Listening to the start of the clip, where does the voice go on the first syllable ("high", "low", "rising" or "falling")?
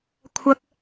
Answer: high